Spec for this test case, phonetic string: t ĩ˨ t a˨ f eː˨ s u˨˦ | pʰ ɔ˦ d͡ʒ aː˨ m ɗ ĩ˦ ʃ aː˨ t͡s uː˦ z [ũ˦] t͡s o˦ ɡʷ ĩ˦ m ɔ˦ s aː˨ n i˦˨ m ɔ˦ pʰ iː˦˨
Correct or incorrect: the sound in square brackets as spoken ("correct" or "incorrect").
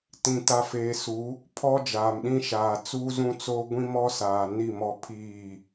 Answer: correct